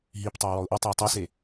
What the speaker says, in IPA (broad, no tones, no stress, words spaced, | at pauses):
ɦip tˤeʊ̯wɔʊ̯ʔotˤøə̯ tˤɛse